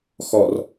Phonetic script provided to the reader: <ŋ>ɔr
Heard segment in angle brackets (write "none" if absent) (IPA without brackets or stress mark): x